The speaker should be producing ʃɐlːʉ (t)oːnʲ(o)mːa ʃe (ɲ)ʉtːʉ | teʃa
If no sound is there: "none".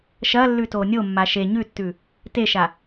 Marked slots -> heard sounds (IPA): t, o, ɲ

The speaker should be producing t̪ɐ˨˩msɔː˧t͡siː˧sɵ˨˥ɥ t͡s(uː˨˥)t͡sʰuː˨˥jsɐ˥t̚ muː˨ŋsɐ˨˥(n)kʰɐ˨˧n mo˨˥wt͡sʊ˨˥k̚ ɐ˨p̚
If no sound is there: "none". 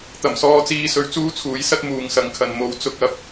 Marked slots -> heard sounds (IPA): uː˥, ŋ

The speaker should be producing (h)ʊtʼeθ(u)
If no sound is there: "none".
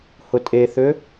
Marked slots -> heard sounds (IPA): h, ø

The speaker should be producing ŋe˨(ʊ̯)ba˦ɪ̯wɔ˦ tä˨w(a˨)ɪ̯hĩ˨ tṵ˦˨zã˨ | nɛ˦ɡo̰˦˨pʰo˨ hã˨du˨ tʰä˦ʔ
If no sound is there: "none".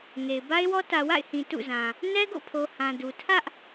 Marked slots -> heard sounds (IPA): ɪ̯, a̰˦˨

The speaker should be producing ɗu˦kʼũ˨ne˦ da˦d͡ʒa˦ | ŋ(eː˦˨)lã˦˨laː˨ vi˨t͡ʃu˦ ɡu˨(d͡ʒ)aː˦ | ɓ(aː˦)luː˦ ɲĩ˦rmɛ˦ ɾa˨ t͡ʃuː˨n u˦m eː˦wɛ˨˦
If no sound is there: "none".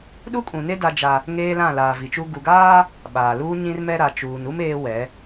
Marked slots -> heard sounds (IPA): eː˦, ɡ, aː˨

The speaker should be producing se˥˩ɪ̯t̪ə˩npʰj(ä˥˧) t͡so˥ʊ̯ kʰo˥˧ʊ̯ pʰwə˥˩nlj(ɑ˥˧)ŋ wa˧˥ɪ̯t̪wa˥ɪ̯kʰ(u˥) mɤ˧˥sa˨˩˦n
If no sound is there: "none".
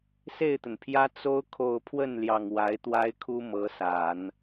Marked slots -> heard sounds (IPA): ä˥, ɑ˨˩, u˥

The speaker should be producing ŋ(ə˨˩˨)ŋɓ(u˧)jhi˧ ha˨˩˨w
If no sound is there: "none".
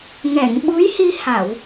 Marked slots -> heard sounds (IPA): ɛ˨˩˨, u˧˥

